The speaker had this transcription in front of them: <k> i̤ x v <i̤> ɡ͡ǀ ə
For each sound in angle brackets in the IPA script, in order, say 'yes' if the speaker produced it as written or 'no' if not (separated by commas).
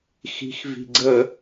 no, yes